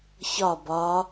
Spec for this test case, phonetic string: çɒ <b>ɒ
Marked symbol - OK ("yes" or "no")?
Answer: yes